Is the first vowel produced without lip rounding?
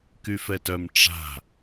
no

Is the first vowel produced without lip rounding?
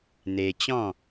yes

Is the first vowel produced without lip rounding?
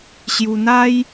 no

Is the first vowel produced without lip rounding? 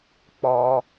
no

